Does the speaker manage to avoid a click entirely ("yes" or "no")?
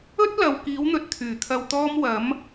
yes